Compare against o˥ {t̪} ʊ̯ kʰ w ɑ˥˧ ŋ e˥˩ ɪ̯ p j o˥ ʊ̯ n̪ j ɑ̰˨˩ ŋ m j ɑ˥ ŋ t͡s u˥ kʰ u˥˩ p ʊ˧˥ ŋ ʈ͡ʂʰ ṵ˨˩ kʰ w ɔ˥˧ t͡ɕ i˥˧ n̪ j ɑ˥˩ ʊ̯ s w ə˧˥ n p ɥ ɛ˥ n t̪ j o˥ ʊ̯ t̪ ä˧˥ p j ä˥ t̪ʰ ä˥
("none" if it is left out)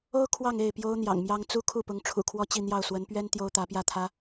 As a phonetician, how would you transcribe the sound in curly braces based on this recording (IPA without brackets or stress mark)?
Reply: none